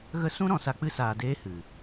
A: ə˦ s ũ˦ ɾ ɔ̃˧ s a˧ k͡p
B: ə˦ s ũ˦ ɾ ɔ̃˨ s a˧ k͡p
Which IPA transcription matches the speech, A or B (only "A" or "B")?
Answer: A